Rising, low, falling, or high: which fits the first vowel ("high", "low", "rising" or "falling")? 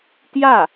falling